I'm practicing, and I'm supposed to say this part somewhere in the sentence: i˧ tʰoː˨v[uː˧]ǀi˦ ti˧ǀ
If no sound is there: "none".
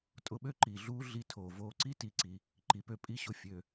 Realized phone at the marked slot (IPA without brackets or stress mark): oː˧